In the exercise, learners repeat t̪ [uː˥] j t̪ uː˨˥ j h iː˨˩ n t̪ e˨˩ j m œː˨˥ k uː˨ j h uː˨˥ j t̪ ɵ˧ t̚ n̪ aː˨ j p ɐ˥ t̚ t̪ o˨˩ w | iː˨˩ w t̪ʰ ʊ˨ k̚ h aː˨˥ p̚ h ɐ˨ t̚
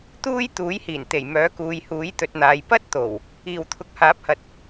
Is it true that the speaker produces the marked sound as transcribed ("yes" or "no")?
yes